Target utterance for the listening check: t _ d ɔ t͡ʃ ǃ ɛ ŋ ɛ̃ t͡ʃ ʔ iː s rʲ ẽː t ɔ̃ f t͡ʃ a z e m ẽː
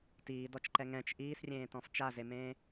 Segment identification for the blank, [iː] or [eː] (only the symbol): iː